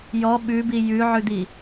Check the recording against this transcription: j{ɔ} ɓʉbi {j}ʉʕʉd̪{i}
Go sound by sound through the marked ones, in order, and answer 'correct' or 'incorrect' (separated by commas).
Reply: correct, correct, correct